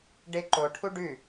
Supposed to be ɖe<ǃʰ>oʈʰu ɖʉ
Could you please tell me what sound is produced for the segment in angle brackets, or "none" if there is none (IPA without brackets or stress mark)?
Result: ǃ